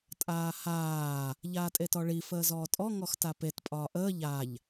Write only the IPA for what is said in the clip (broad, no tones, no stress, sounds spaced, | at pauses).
tʼ aː h aː | ʎ aː tʼ e t ɔ ɭ i f əː z ɔː tʼ ɔ ŋ ɔ x t a p e t pʼ ɒː ʔ əː ʎ a ʎ